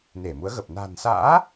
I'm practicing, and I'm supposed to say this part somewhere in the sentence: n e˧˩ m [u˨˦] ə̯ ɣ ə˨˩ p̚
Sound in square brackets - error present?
no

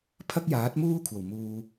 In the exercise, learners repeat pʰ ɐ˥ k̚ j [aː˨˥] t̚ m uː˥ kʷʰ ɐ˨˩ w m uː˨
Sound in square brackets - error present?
no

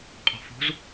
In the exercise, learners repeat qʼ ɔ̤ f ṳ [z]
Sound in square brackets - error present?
no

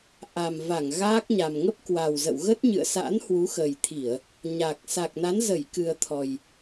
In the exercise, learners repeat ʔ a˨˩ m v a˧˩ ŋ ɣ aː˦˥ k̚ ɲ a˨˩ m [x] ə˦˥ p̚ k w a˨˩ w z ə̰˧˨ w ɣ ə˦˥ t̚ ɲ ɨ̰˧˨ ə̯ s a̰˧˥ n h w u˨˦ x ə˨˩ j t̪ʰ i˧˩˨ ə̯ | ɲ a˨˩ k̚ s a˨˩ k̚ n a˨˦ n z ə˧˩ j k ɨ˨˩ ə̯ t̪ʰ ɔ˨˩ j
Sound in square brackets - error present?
yes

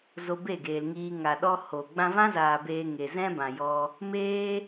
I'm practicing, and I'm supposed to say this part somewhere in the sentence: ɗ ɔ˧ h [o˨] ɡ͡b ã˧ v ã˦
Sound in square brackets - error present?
no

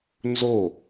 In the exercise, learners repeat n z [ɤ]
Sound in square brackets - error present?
yes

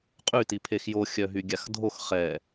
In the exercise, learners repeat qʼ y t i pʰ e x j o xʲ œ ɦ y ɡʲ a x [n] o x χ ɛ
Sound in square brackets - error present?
yes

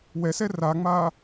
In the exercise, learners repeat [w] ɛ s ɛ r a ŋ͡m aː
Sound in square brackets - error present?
no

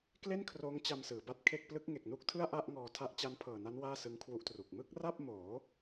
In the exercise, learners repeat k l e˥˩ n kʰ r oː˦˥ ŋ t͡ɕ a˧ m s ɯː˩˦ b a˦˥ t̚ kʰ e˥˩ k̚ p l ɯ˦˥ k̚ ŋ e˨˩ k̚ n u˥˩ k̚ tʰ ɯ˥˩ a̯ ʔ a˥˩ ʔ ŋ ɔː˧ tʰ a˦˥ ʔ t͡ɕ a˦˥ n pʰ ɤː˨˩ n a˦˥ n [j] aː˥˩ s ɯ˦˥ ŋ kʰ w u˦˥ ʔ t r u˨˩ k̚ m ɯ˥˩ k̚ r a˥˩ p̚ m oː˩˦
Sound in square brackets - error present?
yes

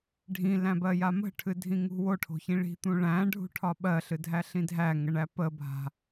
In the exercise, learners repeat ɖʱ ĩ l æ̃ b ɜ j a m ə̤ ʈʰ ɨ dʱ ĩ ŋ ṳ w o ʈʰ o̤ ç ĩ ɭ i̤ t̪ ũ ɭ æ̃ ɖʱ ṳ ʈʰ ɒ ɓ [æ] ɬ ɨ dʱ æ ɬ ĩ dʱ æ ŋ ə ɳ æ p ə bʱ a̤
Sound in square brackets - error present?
yes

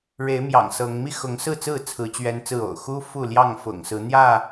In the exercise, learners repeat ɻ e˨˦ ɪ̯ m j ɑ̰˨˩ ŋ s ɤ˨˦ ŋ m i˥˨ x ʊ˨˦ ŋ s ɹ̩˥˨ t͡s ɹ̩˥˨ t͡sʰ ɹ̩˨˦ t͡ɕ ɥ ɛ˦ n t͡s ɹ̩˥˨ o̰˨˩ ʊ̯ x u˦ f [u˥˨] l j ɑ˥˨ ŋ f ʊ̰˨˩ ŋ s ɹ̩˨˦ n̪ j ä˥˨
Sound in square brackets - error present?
no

